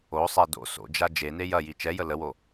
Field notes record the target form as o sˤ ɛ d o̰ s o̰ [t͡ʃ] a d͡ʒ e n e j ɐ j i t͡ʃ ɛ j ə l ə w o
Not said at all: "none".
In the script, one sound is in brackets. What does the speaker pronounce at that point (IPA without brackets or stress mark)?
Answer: d͡ʒ